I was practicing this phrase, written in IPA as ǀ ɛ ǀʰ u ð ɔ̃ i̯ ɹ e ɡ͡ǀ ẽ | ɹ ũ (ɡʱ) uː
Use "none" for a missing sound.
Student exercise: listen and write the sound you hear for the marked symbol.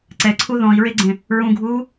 ɡʱ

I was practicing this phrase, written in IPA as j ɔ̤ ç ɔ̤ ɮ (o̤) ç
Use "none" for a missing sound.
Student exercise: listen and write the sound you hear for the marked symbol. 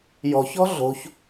o̤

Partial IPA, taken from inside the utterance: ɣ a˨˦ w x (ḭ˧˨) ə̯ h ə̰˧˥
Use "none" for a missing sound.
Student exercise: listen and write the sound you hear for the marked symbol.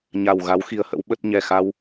i˨˦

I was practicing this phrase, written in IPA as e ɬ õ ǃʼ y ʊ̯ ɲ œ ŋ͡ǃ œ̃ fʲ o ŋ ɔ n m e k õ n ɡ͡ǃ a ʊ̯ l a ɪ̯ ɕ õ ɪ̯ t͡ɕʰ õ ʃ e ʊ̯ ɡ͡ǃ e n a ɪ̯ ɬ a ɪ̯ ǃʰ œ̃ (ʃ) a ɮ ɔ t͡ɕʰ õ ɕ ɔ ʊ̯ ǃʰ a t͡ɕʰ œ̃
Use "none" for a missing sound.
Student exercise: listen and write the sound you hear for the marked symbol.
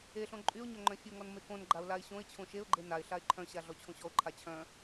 ɕ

